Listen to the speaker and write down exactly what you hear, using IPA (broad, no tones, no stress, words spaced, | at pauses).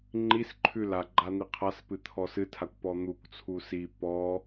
ŋ͡ǃisǃʰʉ laɡ͡ǃa n̪iqʰaspɨ t̪ʰɔsɨtʰakʷ pɔn̪ukʷt͡sʰu si pɔ